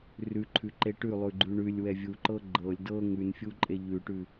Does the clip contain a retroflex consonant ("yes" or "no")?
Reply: yes